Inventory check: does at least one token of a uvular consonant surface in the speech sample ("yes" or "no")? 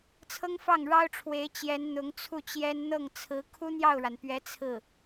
no